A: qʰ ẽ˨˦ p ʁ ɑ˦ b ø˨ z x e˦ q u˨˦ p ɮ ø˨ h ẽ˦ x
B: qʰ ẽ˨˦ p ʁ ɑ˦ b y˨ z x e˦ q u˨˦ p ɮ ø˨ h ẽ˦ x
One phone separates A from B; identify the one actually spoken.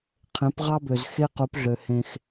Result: A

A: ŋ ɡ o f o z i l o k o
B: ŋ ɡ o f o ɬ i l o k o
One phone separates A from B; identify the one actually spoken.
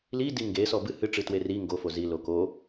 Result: A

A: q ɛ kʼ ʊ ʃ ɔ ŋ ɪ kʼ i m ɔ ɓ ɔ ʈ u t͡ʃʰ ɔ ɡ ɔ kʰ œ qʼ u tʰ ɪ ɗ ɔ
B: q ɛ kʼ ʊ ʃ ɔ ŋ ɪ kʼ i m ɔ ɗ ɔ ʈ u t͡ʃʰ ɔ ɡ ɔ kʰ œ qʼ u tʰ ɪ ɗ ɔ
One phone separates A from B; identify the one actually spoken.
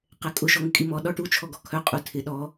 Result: B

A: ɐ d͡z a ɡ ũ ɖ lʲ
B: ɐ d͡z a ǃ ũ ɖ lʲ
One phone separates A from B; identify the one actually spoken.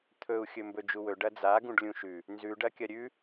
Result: A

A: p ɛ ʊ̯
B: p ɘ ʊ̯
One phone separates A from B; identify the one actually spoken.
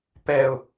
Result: A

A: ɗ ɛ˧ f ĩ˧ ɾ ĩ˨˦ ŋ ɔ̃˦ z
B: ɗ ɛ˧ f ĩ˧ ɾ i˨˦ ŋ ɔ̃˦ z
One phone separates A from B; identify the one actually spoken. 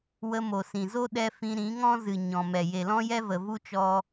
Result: A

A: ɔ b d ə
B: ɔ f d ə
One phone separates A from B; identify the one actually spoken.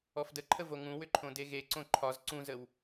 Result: B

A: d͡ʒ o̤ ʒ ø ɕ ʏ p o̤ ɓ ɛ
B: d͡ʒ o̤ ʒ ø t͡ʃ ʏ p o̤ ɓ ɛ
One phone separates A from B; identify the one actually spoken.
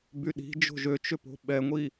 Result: B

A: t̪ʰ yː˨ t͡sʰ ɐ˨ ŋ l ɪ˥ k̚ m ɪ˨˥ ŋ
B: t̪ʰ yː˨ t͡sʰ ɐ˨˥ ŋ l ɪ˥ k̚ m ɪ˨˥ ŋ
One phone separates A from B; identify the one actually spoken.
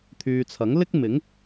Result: B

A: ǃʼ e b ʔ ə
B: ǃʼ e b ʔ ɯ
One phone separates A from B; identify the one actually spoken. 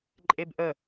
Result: A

